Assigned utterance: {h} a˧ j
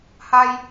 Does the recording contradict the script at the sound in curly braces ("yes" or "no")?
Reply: no